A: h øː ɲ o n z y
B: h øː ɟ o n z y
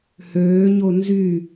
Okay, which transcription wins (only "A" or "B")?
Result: A